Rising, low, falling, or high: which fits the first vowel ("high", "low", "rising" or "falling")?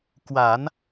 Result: low